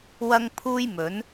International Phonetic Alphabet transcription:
wɐ˥ŋ pʰuː˥jmɵ˨˥n

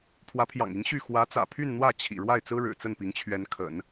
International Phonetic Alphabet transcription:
pʰwä˧˥pʰjɑ̰˨˩ŋi˧˥ŋ ɕy˥˩ xwä˧˥t͡sä̰˨˩pʰy˥˧nn̪wä˥˩ t͡ɕʰḭ˨˩ ɻwa˥˩ɪ̯t͡sɹ̩˥ɻɻ̩˨˩ t͡sə˥˩npi˧˥ŋt͡ɕʰɥɛ˧˥n kʰə̰˨˩˦n

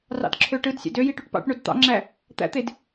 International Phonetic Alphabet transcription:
rɑ̰dǁʰøʈɯdsʲæ̰d øji ʈyʈpɑ̰ʈɳod t̪ɑ̰ŋ͡ǁæ | t̪æ̰t̪ed

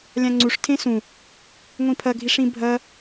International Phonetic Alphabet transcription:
lʲãŋ͡ǀuʂ tʰẽsũ | ŋʷĩpʰɐ ɡʱiʂĩbʱɐ

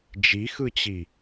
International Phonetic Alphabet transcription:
d͡ʒixɯt͡ɕi

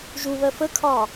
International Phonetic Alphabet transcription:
ʒuβɜ fəkʰɒː

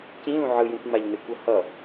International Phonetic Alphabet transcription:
cĩlũ ʕɯjũkʷ ŋ͡maʎnekʷʌhʌ

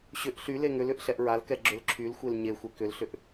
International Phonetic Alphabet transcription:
ɕʏʔ ɬy leŋʏlʏʔ ɬɛʔɹalkɛ ɡ͡ǁʏlǁʰylxʷel ɲe xʷekʏlɬʏʔ

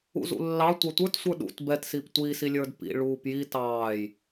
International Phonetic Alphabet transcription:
ṵzṵlːɑ tʷɑtʷə˞t sʷə˞ɗṵt bɛt siptʷi silʲə˞dpḭ ɭuːpji tɑːj

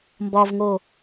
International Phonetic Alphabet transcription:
mbɒvŋo

